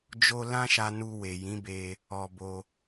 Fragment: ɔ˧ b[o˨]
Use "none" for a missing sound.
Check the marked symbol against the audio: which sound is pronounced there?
o˧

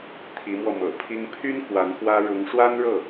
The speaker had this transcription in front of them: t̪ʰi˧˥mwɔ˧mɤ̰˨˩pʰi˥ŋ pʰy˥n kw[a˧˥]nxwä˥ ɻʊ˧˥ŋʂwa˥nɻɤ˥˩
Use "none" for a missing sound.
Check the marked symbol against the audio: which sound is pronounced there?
a˧˥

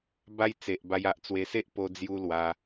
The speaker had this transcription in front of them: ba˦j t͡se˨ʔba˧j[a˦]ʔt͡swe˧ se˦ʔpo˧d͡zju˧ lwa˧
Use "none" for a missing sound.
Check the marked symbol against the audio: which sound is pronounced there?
a˨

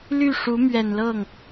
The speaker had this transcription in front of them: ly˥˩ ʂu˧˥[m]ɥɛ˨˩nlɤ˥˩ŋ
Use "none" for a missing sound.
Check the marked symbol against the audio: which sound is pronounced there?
m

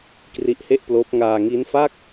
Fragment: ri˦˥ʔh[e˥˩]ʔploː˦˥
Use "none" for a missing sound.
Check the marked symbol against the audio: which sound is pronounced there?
e˥˩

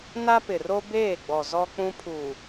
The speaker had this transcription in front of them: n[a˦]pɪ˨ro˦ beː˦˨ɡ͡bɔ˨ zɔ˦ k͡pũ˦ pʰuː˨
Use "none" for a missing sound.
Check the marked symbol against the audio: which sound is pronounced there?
a˦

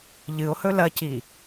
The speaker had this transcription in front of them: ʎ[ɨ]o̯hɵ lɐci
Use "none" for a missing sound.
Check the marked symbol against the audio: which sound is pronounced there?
ɨ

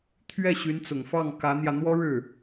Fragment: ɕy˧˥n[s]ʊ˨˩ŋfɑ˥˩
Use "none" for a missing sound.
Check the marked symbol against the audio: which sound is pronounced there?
t͡s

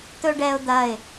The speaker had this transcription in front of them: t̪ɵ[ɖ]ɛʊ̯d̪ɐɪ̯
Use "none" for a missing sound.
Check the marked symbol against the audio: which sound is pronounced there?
ɖ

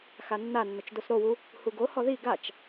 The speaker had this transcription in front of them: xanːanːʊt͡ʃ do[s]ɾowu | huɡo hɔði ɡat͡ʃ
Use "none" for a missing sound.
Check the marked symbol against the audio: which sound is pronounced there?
s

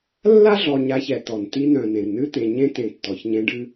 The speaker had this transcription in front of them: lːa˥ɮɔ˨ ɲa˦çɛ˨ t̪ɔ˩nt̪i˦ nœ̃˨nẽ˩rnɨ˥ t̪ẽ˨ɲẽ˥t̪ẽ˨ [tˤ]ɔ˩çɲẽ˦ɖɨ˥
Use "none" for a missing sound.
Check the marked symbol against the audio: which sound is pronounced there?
tː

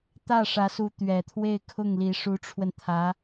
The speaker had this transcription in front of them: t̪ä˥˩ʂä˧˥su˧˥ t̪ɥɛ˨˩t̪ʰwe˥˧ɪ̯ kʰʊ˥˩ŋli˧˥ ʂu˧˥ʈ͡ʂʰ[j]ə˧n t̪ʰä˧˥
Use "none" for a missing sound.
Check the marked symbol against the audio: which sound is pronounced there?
w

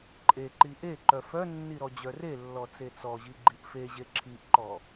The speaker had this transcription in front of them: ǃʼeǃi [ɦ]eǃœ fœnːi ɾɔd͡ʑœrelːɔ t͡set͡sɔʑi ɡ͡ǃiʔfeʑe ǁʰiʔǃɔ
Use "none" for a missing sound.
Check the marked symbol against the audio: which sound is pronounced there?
ʔ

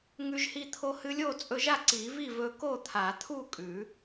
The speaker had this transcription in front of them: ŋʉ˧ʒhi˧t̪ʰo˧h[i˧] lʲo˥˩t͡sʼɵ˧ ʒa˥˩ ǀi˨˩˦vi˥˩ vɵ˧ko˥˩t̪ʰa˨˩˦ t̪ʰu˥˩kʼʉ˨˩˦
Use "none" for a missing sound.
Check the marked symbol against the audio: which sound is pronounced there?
ɨ˧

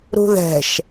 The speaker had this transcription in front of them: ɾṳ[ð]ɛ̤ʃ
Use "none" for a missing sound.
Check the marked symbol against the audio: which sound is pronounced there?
ð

